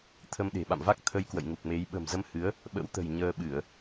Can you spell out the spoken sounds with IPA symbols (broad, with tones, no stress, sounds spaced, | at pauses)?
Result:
t̪ʰ ə˧ m ɗ e̤˨˩ ɓ a̰˧˨ m v a˦˥ k̚ t̪ʰ ə˧ j k w ə̰˧˨ j ŋ u˨˩ k̚ m e˨˦ j ɓ ə̤˨˩ m z ə˧ m h ɨ˨˦ ə̯ | ɓ ə̰˧˥ w t̪ ə̤˨˩ j ɲ əː˧ ɓ ɨ˧˩˨ ə̯